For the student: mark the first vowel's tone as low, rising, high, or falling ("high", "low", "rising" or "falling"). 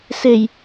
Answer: low